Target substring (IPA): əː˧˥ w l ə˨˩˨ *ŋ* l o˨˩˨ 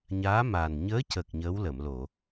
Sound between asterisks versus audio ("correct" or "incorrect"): incorrect